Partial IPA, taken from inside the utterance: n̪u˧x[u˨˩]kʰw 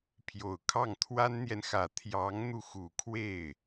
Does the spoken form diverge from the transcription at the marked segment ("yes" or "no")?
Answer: no